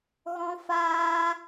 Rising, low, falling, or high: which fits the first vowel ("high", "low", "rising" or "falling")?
high